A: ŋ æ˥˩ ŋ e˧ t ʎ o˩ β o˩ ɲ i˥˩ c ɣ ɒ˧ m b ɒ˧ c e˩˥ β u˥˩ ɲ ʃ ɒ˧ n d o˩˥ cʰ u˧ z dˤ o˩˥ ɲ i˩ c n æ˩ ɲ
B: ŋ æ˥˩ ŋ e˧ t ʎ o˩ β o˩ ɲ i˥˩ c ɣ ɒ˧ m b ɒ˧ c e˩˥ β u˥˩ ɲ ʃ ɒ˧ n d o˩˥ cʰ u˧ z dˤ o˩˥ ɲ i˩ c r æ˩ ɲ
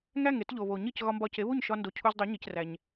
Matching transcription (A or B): B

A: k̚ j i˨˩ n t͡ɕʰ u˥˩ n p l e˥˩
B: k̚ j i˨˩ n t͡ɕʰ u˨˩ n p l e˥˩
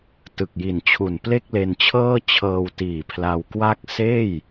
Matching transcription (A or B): B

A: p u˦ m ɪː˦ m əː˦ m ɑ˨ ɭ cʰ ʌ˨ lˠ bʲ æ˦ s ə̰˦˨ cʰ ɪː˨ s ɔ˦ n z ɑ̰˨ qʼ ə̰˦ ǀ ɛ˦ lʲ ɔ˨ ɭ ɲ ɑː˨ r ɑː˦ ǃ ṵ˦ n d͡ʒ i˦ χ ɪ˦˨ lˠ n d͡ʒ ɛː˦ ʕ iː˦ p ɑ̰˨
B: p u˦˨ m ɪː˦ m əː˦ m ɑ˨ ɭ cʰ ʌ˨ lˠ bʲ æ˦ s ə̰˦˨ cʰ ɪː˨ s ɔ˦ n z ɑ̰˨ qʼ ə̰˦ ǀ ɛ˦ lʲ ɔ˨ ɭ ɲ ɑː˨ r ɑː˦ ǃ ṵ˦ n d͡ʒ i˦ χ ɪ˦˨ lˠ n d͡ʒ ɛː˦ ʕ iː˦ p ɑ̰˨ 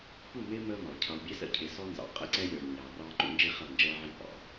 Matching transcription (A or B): B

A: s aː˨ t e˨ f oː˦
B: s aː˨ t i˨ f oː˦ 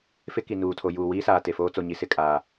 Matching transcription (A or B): A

